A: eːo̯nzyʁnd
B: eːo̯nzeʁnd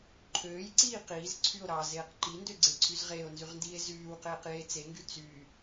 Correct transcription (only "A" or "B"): A